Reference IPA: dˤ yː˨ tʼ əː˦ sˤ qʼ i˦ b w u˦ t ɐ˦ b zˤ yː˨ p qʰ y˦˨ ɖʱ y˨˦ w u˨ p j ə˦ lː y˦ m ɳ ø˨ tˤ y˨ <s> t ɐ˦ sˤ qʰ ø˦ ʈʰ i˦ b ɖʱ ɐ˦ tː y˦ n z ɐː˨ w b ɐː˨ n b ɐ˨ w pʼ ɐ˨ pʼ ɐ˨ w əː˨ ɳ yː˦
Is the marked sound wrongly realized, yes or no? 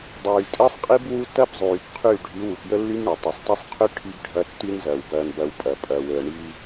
yes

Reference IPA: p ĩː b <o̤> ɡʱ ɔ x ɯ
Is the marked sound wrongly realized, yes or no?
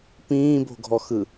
no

